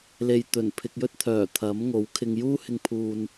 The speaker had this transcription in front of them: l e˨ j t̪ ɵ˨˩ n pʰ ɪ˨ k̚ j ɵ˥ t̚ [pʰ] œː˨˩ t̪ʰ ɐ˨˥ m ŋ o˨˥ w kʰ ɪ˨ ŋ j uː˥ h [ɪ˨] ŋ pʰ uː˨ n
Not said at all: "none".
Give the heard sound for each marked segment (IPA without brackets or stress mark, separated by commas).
t̪ʰ, ɪ˨